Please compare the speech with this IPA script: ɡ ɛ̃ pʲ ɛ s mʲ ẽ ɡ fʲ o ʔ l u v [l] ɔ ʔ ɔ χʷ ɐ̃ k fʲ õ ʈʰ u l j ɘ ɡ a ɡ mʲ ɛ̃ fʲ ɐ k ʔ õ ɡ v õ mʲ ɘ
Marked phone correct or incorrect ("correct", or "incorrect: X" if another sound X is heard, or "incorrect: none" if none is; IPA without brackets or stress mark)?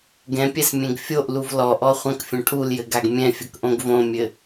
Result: correct